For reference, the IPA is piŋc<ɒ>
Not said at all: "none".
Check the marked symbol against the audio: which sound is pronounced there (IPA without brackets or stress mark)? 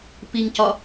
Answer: ɒ